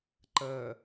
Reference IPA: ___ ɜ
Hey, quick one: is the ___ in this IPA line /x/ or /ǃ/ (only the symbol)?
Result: ǃ